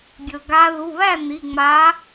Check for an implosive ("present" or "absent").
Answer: absent